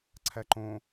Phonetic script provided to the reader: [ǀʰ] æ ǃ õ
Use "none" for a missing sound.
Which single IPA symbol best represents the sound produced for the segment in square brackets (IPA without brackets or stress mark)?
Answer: ǀʰ